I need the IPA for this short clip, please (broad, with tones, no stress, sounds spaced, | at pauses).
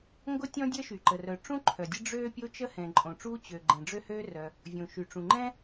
ŋ ɡ ʊ˥ tʲ ɔ̃˥ dʲ əː˥ ʃ y˩ ǃ ə˩ r œ˩ ʈ͡ʂ ũ˥ ǃʰ œ˩ dʲ ə˥ ɖ͡ʐ øː˥ pʲ o˥ t͡ʃ ə˥ h ɛ̃˩ ǃʼ õ˩ ʈ͡ʂ uː˥ t͡ɕ ø˩ ɡ͡ǃ ɛ̃˩ ɖ͡ʐ ø˥ h øː˥ r œ˩ | vʲ õ˩ ʃ y˩ ʈ͡ʂ ũ˩ ŋ͡ǃ ɛ̃˥